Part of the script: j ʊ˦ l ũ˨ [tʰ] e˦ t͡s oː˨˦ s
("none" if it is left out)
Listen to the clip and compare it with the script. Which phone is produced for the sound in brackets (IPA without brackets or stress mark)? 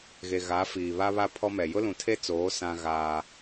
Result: tʰ